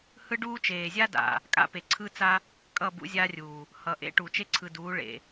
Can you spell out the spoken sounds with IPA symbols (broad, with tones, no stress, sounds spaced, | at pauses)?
h ɯ˦ ɖ uː˦ t͡ʃ eː˨ zʲ a˦ d a̰˨ | kʼ a̰˦ p e˨ ǀʰ ɯ˦ t͡s a˦ | kʼ ʌ˦˨ b ṵ˦ zʲ aː˦ rʲ uː˨ | h ʌ˨ ʔ ḛ˦ ʈ u˨ t͡ʃ e˦ ǀʰ ɯ˨ d uː˨˦ ɭ ḛ˨